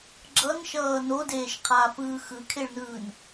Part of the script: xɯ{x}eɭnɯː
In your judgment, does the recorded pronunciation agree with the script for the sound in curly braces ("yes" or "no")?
no